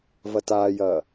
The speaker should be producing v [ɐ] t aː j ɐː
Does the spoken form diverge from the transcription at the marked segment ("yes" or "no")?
no